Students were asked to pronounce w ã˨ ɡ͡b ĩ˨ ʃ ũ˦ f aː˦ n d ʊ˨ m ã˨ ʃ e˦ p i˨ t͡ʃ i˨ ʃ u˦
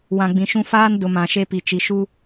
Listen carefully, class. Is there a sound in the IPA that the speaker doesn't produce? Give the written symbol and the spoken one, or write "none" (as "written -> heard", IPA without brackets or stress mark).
none